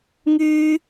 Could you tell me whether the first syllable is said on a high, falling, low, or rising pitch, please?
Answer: high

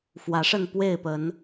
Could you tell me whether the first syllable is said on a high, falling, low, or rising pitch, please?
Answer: rising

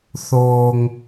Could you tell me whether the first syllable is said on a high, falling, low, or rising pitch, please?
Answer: low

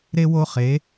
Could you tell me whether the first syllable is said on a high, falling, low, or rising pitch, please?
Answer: high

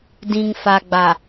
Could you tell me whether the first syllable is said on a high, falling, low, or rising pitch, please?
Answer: low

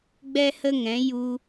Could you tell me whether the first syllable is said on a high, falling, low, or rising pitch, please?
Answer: high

